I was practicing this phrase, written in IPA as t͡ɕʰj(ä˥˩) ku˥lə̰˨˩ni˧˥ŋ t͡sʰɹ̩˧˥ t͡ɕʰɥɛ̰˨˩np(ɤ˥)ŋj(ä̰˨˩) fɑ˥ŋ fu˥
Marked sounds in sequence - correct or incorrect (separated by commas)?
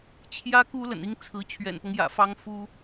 incorrect, incorrect, correct